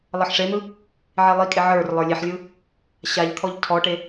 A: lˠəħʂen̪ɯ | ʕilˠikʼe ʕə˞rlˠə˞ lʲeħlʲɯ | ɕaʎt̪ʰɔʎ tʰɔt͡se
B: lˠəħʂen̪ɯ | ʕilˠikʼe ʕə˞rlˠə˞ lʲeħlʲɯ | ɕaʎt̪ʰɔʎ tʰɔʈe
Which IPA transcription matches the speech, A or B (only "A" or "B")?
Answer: B